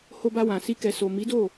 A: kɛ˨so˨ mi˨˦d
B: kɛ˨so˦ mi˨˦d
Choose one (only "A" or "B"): A